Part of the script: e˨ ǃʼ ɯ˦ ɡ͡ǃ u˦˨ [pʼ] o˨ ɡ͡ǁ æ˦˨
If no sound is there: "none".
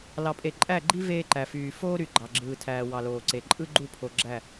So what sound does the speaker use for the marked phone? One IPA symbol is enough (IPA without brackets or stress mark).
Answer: pʰ